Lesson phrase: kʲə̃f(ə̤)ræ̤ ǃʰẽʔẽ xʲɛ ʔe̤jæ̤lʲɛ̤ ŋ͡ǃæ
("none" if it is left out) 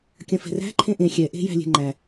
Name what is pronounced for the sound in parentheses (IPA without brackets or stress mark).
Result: ɛ̤